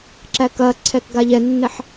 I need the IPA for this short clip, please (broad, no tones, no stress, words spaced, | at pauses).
ǁækɐǀʰɛk ɡaʎɛnːɛħ